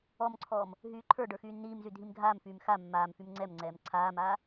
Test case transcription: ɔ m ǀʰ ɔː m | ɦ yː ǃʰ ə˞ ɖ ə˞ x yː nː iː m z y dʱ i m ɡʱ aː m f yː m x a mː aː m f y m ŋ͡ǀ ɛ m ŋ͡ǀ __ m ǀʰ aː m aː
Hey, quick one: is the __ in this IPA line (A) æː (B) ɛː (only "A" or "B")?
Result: B